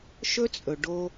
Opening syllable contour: high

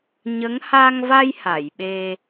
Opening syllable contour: rising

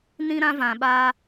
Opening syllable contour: high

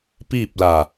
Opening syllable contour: falling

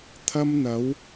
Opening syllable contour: high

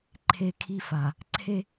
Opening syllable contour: high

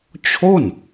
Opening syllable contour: falling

